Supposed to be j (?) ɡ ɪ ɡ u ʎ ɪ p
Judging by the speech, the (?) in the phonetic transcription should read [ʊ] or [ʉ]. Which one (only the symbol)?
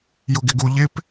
ʊ